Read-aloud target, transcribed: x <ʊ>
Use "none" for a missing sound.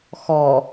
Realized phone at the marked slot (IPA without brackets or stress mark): ɔ